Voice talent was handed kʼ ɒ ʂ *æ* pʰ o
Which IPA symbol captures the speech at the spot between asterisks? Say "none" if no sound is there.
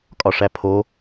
æ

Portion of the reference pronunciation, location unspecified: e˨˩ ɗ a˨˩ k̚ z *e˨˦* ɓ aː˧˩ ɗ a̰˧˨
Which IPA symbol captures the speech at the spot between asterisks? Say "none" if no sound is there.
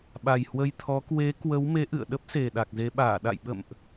e˨˦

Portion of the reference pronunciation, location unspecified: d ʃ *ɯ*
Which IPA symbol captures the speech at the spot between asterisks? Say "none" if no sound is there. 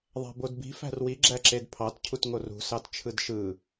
ɯ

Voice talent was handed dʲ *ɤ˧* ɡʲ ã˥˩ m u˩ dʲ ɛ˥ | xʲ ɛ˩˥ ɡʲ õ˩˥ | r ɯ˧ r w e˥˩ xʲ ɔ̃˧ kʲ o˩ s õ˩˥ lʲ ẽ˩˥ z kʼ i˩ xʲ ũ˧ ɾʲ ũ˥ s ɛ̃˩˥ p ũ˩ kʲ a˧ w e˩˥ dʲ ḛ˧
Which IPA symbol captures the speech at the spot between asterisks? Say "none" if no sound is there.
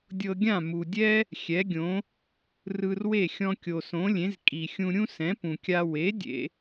ɤ˧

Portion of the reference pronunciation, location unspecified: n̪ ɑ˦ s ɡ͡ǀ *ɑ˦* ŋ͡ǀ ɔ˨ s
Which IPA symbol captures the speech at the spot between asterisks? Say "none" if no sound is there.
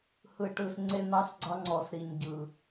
ɑ˦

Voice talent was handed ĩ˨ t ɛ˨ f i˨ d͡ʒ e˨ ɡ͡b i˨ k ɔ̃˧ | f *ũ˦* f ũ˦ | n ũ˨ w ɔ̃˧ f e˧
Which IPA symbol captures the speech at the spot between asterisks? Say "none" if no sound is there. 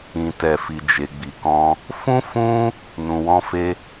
ũ˦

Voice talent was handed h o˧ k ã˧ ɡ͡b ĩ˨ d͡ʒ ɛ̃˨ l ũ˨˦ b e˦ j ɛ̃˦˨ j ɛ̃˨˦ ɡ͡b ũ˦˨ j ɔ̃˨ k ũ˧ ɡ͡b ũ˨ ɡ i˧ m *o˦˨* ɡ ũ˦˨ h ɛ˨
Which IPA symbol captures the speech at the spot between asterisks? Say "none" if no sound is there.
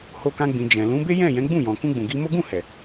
o˦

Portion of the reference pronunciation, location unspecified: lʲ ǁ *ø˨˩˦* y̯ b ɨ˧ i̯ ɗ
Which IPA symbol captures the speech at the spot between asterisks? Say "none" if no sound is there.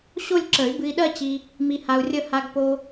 ə˨˩˦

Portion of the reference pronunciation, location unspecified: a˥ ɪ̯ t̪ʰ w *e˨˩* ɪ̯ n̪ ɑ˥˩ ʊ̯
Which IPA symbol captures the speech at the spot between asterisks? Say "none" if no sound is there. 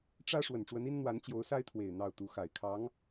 e˨˩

